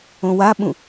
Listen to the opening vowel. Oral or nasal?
nasal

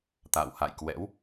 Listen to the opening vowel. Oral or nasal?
oral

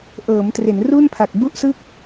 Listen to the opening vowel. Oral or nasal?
oral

